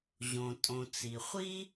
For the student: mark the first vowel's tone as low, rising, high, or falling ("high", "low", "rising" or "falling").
low